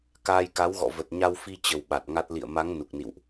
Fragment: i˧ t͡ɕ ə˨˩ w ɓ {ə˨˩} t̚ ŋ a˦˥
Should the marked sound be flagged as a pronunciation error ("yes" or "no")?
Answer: yes